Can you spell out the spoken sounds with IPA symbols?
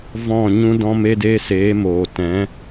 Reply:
v ɔ̃˦˨ ɲ ũ˦ d ɔ̃˦ m e˦ d e˦ s eː˨˦ m oː˨ t ɛ̃˨˦

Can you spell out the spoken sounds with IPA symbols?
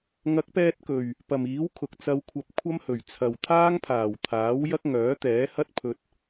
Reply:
ŋ ɐ˨˥ k̚ p ɛː˧ t̚ k ɵ˨˩ ɥ | p ɐ˨˩ m iː˨˥ w kʰ ʊ˨ k̚ t͡s ɐ˧ w kʷʰ ɐ˧ p̚ kʷʰ ɐ˥ m h ɵ˨˩ ɥ t͡sʰ ɐ˨ w t̪ʰ aː˥ ŋ pʰ aː˨˩ w t̪ʰ aː˨˥ w j ɐ˥ k̚ ŋ œː˨˥ t̪ ɛː˨˥ h ɐ˥ t̚ pʰ ɵ˧ t̚

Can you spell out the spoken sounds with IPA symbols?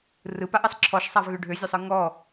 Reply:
r ɯ p a ʔ ɛ sˤ ǁʰ ɔ ʃ sˤ a v ɣ ø ɖʱ ø zʲ ø sˤ ɯ ŋ ɔ

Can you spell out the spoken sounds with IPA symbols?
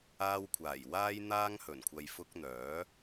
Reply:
aː˧ w kʷʰ aː˨˩ j w aː˥ j n̪ aː˥ ŋ h ɵ˨˩ n kʷʰ ɐ˨ j f ʊ˧ k̚ n̪ œː˨˥

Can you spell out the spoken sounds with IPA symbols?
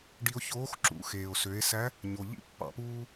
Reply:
ɖ i˧ o̯ ç oː˧˥ x ǁ ṵ˩˧ x eː˩ o̯ s ø˩˧ e̯ s æ˧˥ | ɲ o˩ ʎ ḭ˥ pː ɑ̰˩˧ p uː˧

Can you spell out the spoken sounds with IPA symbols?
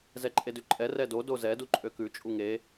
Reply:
z ɛ ǃʼ e d ʉ ǃʼ ɛ r ɛ d o d o z ɛ d u ǃʼ ø k ʉ t͡ʃʼ u ŋ e

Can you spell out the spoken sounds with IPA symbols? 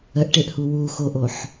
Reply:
ə ʔ ʈ e ʔ h u w u x o ʔ o ħ

